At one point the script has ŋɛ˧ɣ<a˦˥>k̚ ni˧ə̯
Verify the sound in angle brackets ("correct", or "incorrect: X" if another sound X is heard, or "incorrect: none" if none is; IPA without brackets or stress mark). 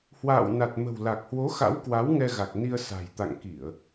incorrect: a˨˩